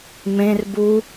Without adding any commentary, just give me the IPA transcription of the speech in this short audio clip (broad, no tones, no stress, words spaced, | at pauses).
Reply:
mẽr bu